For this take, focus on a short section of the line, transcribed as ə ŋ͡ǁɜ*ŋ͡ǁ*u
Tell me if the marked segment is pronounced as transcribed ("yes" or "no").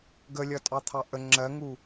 no